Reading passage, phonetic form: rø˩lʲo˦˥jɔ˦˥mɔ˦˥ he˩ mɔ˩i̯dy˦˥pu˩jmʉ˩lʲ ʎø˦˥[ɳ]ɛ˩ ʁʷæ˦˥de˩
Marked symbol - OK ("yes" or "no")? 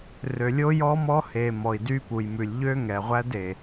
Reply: no